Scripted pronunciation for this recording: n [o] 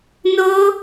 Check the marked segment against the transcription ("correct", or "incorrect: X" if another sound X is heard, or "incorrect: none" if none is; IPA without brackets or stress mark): correct